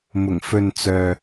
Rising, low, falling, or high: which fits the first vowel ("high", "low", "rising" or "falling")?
low